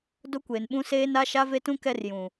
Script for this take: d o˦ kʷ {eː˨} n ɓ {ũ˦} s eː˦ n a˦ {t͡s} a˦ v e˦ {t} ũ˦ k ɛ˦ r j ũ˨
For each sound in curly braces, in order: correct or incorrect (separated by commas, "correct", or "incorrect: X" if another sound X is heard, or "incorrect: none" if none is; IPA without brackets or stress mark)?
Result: incorrect: e˨, correct, incorrect: ʃ, correct